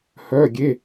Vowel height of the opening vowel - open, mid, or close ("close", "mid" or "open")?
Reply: mid